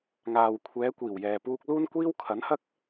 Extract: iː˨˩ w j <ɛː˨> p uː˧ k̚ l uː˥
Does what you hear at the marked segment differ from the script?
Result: no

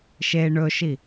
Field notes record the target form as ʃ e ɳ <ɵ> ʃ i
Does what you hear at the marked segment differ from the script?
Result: no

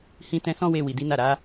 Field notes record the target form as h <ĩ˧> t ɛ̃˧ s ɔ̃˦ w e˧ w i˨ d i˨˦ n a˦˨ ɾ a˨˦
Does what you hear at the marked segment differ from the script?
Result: no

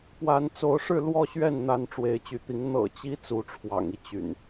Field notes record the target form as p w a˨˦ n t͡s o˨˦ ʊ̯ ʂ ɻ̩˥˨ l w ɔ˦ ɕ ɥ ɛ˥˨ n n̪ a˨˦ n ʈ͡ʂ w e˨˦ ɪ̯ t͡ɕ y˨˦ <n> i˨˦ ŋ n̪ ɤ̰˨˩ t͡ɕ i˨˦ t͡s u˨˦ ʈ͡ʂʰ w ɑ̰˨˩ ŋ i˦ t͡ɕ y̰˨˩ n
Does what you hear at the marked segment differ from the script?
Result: yes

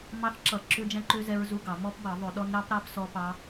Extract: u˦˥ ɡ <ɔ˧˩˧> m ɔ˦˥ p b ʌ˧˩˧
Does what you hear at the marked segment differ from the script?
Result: yes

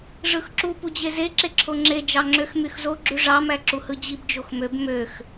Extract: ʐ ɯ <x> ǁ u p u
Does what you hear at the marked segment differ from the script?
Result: no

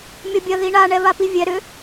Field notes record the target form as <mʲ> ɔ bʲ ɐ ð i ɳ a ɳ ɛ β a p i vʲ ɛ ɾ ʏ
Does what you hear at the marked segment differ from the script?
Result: no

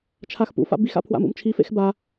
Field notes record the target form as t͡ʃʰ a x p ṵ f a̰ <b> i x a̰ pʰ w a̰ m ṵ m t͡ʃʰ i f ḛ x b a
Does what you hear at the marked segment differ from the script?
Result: no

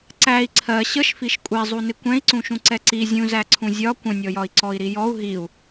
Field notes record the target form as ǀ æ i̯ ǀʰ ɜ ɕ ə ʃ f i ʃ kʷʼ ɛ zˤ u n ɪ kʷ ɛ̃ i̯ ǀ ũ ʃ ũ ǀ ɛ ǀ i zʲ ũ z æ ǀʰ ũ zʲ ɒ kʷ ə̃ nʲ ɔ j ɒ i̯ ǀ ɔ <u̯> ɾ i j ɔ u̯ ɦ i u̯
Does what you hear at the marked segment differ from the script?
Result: yes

